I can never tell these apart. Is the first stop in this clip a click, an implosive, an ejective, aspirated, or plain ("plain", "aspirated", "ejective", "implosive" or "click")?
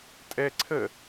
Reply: ejective